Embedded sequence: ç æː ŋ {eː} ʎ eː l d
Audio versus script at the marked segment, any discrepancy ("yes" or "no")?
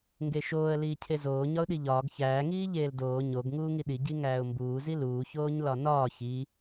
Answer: yes